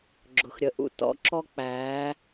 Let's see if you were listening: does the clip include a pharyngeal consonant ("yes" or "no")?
no